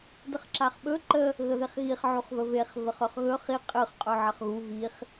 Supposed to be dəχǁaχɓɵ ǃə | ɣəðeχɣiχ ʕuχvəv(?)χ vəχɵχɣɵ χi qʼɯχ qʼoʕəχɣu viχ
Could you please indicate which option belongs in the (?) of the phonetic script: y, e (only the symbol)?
e